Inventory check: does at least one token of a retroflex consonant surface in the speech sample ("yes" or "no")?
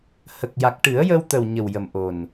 yes